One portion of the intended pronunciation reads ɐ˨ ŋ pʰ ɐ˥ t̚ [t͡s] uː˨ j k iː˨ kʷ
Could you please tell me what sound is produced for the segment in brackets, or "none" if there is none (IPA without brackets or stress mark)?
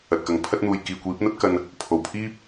n̪